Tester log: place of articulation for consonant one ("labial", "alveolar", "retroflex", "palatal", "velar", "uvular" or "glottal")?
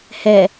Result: glottal